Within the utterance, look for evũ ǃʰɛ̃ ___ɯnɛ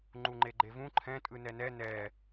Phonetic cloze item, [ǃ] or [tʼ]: tʼ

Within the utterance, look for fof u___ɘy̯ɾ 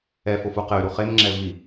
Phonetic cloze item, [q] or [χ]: q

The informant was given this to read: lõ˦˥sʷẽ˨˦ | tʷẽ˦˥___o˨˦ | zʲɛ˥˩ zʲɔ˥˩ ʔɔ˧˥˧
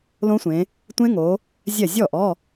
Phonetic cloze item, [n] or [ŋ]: ŋ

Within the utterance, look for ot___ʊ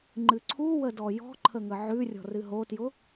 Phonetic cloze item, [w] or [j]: j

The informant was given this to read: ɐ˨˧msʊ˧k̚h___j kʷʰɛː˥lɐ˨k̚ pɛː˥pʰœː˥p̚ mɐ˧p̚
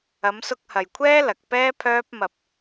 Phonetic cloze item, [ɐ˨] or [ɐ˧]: ɐ˨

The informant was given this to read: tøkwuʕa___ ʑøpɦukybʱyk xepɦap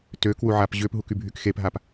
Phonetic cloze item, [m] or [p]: p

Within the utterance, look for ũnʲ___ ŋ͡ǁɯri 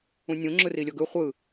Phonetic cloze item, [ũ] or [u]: ũ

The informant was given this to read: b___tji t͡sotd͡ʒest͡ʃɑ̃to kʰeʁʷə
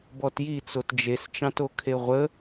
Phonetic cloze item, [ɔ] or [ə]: ɔ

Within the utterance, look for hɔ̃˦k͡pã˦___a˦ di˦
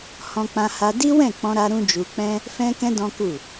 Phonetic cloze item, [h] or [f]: h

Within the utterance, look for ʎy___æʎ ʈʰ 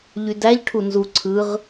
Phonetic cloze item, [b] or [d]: d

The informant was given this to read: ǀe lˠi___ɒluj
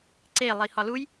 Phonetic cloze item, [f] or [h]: h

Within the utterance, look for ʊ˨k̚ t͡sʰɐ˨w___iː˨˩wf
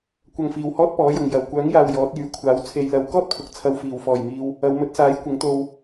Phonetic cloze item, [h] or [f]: f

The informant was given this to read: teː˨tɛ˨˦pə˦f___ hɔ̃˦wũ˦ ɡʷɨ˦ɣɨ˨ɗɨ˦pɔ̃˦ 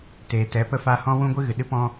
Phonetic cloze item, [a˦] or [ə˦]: a˦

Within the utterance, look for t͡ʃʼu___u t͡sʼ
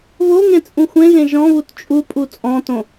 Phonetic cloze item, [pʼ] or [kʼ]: pʼ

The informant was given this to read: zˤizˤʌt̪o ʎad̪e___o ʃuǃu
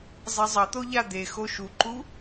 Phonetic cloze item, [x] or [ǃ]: x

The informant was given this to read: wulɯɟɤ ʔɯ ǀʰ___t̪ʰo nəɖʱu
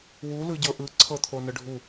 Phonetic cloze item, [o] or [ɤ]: ɤ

